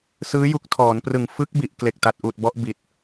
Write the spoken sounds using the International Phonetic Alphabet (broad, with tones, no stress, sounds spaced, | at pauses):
s ɯː˦˥ j u˦˥ k̚ tʰ ɔː˩˦ n p r ɯ˨˩ ŋ f ɯ˦˥ k̚ b i˨˩ ʔ k l e˨˩ k̚ t a˨˩ t̚ ʔ uː˨˩ t̚ b ɔ˦˥ ʔ b i˨˩ t̚